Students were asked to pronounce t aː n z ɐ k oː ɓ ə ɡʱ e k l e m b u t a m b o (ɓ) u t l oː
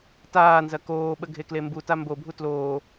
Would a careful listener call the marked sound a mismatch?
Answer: yes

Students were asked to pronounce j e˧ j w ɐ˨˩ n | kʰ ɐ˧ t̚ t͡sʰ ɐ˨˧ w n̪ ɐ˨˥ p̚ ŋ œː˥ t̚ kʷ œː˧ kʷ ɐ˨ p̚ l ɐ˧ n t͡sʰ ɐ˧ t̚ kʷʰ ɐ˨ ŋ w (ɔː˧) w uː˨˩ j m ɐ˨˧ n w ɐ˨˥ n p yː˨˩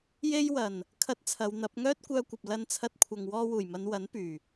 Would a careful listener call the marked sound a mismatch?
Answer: no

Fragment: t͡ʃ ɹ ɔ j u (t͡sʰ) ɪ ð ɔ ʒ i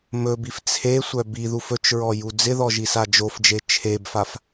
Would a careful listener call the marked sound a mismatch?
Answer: yes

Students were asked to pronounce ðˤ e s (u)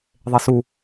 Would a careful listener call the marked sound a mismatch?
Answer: no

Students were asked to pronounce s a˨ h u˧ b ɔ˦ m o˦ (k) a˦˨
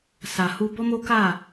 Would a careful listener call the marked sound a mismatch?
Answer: no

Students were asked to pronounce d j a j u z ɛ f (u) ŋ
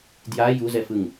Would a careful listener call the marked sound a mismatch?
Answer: yes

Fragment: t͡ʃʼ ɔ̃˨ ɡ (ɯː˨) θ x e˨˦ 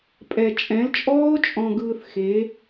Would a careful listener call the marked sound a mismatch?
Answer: no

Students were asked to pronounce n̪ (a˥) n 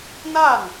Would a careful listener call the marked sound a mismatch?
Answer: yes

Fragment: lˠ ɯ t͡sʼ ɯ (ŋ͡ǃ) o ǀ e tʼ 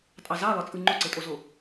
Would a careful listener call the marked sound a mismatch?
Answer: no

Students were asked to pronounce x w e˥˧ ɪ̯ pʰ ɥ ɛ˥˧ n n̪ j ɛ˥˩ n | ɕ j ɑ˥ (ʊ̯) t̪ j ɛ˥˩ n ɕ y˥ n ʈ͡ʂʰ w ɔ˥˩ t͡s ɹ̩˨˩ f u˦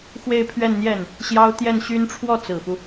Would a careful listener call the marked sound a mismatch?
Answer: no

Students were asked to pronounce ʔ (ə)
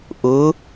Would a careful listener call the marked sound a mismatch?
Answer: yes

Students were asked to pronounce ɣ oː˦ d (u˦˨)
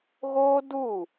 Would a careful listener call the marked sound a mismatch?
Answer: no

